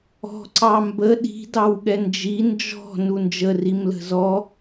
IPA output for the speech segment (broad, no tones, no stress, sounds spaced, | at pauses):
ɔ̤ ǀ ɑ m b ə ɗ i̤ d ɑ w ɠ ɛ n d͡ʒ i n d͡ʒ ɔ̤ n u n d͡ʒ ə r i m l ə̤ z ɔ